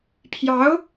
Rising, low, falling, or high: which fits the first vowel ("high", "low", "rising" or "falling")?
rising